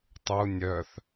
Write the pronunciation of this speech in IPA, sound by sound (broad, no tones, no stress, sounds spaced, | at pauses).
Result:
tˤ u nʲ œ θ